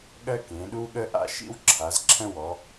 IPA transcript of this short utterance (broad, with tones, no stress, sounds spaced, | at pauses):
ɠ ɜ˦ k ẽ˩˧ ɗ u˦ ɠ ə˦ ʔ a̰˦ ʃ ḭ˦ w ǁʰ a˩˧ z ǁʰ ə̃˦ w ɔ˩˧